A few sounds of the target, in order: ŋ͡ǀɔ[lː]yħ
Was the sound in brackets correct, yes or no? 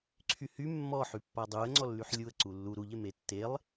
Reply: yes